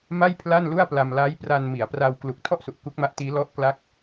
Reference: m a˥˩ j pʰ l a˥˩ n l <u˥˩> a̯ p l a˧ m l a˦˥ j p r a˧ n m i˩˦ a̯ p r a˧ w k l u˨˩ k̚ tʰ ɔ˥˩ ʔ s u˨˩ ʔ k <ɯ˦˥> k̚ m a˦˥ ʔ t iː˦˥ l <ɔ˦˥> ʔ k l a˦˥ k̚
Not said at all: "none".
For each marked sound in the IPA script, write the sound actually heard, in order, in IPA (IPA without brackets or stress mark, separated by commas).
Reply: u˥˩, u˦˥, ɔ˦˥